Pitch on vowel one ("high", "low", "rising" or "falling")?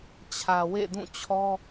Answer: low